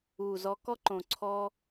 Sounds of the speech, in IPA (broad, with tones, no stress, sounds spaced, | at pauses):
u˨ z ɔ˧ k ɔ˦ ǃ õ˨ ǀʰ ɔ˧